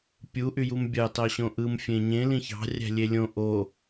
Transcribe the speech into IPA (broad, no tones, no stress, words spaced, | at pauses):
pʲu ʔyjumbʲɑ tɑɕõʔɯm fʲẽɲẽ lĩçɑ̤ rʲæ̤lʲelʲõ ʔo